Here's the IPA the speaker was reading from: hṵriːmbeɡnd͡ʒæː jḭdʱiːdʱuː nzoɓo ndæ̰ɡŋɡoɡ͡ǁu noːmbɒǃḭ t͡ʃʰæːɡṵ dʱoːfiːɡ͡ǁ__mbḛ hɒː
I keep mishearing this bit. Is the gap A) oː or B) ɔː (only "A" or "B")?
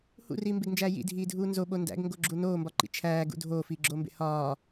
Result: A